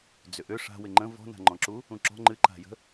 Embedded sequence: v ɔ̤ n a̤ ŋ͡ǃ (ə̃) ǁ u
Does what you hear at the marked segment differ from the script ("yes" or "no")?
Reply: yes